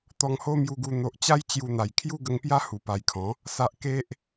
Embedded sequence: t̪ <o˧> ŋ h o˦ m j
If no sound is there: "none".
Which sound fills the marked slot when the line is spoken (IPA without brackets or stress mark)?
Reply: ɔ˧